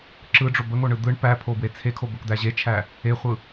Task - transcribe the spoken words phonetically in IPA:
ǁɯɖ͡ʐo bəŋoɳɯ d̪ɯɳ pæpʰobwe t͡sʰekʰo bəkd̪æ ʑet͡ʃʰæ | eχʷɯ

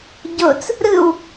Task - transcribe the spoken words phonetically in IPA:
ɟot͡s | ɾɯw

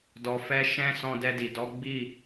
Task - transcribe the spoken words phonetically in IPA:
dɔ˧fɛ˦ ʃɛ̃˦ sɔ̃˧dɛ˧di˨ dɔ˨˦ ɡ͡bi˦˨

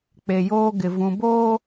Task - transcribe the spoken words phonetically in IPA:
k͡pe˨joː˦ɡɪ˨ vũ˨boː˦

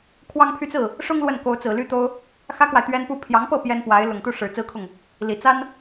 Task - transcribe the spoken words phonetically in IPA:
kʰwɑ˥ŋ pʰy˥˧t͡sɹ̩˥˩ | ʂʊ˥ŋ lwə˥˩n ko˧˥ʊ̯t͡sɹ̩˨˩ly˥t̪o˥ʊ̯ | xä˥kwa˨ɪ̯ t̪ɥɛ˥n pu˥˩ pʰjɑ˧˥ŋpɤ˥˩ pjɛ˥npwa˧˥ɪ̯ lʊ˨˩ŋt̪u˥˩ʂɻ̩˨˩ t͡sɹ̩˥kʰʊ˥˩ŋ | li˨˩ t͡sa˥n

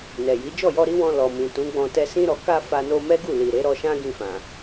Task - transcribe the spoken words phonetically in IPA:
nɛ˨ji˨˦ d͡ʒɔ˦˨jɔ˧ɾi˦wɔ̃˧ lɔ˨mĩ˨tũ˨˦ɡ͡bɔ̃˧ tɛ˧sĩ˦ɾɔ˧ ka˦ fa˧no˧mɛ˦ɡu˦˨ li˨ɾe˨˦ɾɔ˧ʃã˦ ɡĩ˦˨fã˨

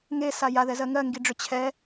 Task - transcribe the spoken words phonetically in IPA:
ŋesa jaðɛzɜ ŋɜŋɡiɖ͡ʐʏ t͡ɕʰɛ

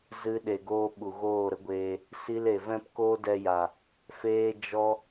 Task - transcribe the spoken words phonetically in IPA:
zɨ˦ɗe˧ɡoː˦ ɓu˨ɣoː˦˨ɾə˦ɡʷeː˧ | si˧le˨ vɛ̃˦pkoː˦dɛ˧ja˨ | feː˦d͡ʒɔ˦

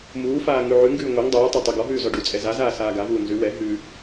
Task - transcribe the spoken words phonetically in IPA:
muːfaː ŋʉʕʉŋɡʉː ŋʷɛŋ dˤuːtˤɛ tˤɛɡɔɦʉː zɔɖut͡sʼɛ zazaː saːɡavuː nzʉ wɛ ɦʉ

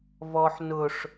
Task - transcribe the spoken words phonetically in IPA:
vɔħ nʊʂ

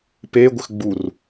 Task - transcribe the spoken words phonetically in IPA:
peɡʷɘx ɡ͡bur

